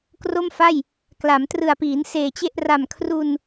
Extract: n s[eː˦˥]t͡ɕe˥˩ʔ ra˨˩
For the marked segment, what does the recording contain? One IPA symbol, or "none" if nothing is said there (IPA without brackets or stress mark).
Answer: eː˨˩